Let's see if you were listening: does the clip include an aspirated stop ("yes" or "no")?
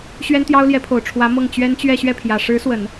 yes